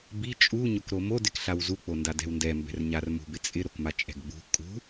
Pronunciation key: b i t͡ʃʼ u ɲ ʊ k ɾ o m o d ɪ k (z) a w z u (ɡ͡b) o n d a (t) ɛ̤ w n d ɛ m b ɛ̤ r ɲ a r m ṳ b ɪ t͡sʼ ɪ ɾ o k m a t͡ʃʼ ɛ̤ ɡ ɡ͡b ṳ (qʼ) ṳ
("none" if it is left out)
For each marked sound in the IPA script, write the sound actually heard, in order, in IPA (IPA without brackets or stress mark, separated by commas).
ɬ, k͡p, d, kʼ